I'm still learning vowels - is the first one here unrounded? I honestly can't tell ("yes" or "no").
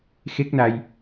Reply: yes